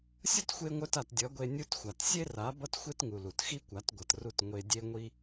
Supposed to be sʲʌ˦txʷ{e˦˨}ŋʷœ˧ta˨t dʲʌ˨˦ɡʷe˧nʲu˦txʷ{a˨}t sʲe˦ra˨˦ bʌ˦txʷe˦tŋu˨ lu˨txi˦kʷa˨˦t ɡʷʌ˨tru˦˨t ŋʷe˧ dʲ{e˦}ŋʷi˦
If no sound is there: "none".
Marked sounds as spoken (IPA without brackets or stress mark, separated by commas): e˧, a˨, e˦